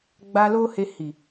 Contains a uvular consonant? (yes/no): no